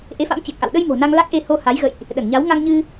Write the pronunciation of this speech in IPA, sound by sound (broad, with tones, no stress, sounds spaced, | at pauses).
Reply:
ʔ e˨˦ f a̰˧˥ m t͡ɕ e˨˩ k̚ ʔ a̰˧˨ w ɗ ə˧ j m o̤˨˩ n a˧ ŋ l a˦˥ k̚ ʔ e˧ h o˧ h a˨˦ j ɣ ə̰˧˨ j ʔ | ɗ ə˧˩ n ɲ a˨˦ w ŋ a˧ ŋ ɲ ɨ˧